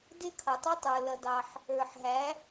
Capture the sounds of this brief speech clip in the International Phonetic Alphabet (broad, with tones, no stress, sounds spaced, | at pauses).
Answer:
d ɪ˥ kʰ ʌ˩ tˤ ə˥ tˤ ə˞˩ l ʌ˩ d ɑ˩ ħ | ə˞˩ ħ ɦ æ˩˥